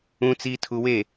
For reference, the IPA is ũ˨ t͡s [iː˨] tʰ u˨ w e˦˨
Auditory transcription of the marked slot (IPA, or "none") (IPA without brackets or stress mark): iː˨